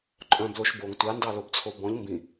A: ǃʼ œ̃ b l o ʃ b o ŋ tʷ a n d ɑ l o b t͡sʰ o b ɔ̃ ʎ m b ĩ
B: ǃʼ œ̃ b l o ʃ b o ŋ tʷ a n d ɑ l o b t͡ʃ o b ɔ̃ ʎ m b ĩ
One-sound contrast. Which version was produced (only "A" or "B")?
A